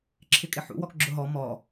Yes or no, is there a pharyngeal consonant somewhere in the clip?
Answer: yes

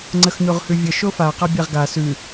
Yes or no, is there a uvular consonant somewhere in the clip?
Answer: yes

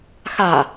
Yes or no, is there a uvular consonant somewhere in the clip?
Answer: no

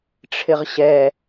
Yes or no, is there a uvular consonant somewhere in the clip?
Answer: yes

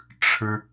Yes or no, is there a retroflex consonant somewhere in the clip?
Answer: yes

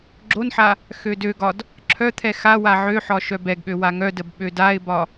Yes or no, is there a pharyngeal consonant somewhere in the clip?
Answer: yes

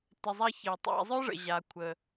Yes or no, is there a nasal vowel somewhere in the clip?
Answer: no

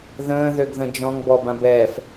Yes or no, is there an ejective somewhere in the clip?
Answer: no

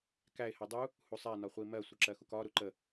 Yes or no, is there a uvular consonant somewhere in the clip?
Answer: yes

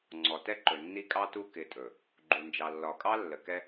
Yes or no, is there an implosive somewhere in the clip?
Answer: no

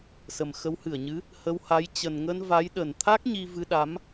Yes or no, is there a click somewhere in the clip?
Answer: no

